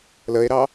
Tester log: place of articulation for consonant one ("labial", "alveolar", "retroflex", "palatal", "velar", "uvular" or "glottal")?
alveolar